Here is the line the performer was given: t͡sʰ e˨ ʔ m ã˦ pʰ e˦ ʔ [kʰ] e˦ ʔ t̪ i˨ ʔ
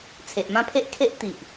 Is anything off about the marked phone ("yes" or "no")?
no